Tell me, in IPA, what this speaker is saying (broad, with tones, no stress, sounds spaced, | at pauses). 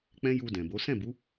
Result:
k͡p ɛ̃˦ j u˧ d ɛ̃˨ b o˨˦ s ɛ̃˦˨ b u˨˦